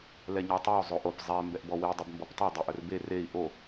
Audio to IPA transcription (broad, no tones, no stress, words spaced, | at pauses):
lɛɲɔtˤɛu̯ zˤoʔop zˤɛ mbɛʔbɔwi dˤɵbmbɔptˤɛ dˤeʔɵrbe rei̯ ʔo